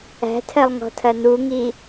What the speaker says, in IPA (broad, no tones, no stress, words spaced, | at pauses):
æ̤tʰɜlˠŋɔ̤tʰɐ n̪uŋi